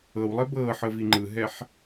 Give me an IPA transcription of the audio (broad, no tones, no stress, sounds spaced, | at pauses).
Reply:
ɤ w lˠ e b ɤː ħ ɤ v i ŋ͡ǃ ɯ ɦ ɛ ħ